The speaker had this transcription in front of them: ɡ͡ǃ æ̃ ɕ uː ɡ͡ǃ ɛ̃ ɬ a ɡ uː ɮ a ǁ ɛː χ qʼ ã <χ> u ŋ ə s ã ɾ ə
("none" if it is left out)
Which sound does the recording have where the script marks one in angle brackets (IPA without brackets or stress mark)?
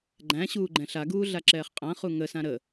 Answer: χ